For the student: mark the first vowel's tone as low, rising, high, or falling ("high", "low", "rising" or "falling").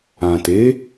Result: low